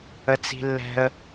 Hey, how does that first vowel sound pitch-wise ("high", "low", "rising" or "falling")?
high